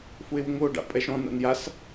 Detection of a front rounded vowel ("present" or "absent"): absent